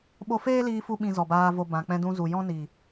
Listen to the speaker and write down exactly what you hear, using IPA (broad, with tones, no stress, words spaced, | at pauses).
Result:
ɓo˧feː˦liː˧fu˧ ɓĩ˧zɔ˨baː˧vo˧ bã˨k͡pɛ̃˧dũ˧zu˨ jɔ̃˦ ni˨